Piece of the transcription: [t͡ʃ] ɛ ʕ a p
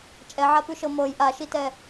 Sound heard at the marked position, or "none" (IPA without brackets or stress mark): t͡ʃʼ